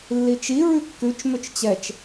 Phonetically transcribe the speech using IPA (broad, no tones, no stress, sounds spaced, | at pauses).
lː i t͡ʃ i ɹ ʉ kː ʉ t͡ʃ m ʏ t͡ʃ t͡ɕ ɛ t͡ʃ